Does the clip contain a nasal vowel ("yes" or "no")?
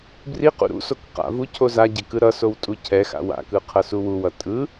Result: no